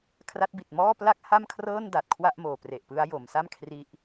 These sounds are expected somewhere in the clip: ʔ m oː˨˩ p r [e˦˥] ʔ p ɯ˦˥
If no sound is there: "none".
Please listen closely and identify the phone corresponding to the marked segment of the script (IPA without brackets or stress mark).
e˨˩